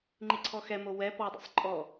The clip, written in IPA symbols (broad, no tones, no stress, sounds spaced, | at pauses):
ŋ͡ǃ i ǀʰ ɔ x ɛ m o w ɛ p ɔ dˤ ḭ sˤ ǃʼ ɔ